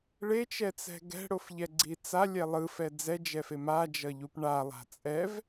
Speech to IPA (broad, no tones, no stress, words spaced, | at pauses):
ɭet͡ʃɛt͡sɛ̤ ɡɛ̤ɽofʎɛɡ͡ǀi t͡salʲɛ lˠɯfɛ d͡zɛd͡ʒɛfe mad͡ʒʌʎup ɳalˠa̤ t͡sʼɛv